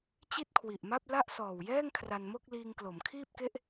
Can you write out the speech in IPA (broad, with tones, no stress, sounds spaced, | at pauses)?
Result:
t͡ɕ i˥˩ t̚ kʰ w i˨˩ ʔ m a˥˩ p̚ l a˥˩ ʔ s ɔː˨˩ w j ɛː˥˩ ŋ kʰ r a˧ n m o˥˩ k̚ l iː˧ ŋ k l o˩˦ m kʰ iː˥˩ p̚ k e˥˩ ʔ